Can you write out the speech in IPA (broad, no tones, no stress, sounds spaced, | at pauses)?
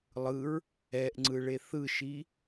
lˠ ɯ ɹ | ɛ ʔ ŋ͡ǀ ɯ ɭ e θ ɯ ʃ i